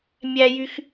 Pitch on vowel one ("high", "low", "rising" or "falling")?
high